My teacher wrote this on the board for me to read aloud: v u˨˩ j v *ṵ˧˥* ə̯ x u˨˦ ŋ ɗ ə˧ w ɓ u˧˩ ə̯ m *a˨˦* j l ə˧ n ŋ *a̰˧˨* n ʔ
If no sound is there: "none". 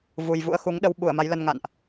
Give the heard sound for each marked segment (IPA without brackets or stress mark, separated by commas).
ṵ˧˥, a˨˦, a̰˧˨